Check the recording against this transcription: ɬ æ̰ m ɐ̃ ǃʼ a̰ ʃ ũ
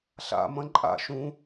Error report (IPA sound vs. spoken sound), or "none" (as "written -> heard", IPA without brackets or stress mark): æ̰ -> a̰